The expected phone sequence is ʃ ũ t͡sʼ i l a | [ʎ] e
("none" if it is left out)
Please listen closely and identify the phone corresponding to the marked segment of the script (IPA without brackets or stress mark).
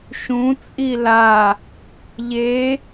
ʎ